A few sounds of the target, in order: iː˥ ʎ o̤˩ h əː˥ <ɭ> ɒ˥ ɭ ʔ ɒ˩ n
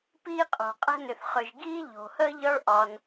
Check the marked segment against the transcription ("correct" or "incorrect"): incorrect